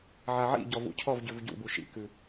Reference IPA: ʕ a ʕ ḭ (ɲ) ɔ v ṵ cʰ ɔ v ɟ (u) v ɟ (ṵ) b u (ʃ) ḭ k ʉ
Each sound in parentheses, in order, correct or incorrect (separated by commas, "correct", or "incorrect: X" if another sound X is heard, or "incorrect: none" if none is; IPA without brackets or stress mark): incorrect: ɟ, incorrect: ʉ, correct, correct